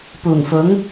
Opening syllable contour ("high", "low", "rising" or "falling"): low